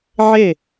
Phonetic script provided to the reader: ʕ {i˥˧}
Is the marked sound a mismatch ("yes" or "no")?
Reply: yes